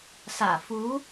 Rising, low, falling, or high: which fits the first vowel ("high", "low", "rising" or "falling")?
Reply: low